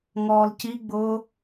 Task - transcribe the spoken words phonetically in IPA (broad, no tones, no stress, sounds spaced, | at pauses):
ŋ ɔː l c i ɡ͡b ʊː